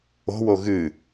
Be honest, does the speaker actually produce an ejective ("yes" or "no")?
no